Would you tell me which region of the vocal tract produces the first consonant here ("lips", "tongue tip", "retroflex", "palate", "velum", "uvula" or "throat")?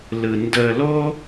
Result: tongue tip